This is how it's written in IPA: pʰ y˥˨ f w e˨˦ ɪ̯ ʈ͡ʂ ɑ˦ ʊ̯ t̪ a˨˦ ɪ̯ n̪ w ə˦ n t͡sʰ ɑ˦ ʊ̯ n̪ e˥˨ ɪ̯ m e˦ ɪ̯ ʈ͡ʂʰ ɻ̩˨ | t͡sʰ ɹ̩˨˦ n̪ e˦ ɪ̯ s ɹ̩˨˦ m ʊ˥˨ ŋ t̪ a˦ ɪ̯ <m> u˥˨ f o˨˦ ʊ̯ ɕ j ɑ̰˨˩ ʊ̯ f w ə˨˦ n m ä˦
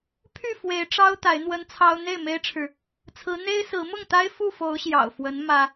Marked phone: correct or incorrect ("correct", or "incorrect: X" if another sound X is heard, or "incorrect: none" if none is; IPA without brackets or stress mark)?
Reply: incorrect: f